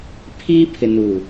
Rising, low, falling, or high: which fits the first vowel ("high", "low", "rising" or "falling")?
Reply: high